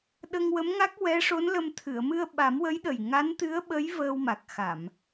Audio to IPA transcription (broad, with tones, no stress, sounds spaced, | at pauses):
ɗ ə˧ ŋ w ə˧˥ m ŋ a˦˥ k̚ w ɛ˧˥ ʂ o˧˥ n l ə˧ m t̪ʰ ɨ˨˩˨ ə̯ m ɨ˧ ə̯ ɓ a˨˩˦ m w ə˧˥ j ɗ ə˨˩ j ŋ a˧˥ n t̪ ɨ˧˥ ə̯ ɓ ə˧˥ j v əː˧ w m a˨˩ k̚ x a˨˩˨ m